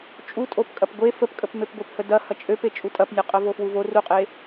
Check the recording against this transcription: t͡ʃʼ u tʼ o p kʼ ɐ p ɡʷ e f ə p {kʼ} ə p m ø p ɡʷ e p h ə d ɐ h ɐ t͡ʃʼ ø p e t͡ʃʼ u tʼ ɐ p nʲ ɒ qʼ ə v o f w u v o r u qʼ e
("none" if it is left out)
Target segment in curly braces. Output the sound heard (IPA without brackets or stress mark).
kʼ